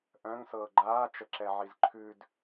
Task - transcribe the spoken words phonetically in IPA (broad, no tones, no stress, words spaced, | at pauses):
ʔœ̃ŋ sɤːɡ͡ǃaː t͡ʃəǁɛʕizǃʰʉd